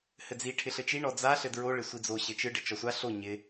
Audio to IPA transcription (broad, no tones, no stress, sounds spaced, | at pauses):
h ɘ d͡z i ʈʰ ɪ ɬ ɘ t͡ʃ i ɳ ɔ d͡z a ɬ ɘ d ɹ o ɭ ɪ sʷ i d͡z o ɕ ɘ t͡ʃ ɯ ɖ ɘ t͡ʃ ɔ sʷ a ɬ o ɲ ɪ